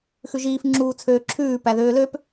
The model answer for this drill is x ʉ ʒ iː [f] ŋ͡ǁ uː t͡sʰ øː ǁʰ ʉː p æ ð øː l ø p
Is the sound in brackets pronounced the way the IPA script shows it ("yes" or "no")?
yes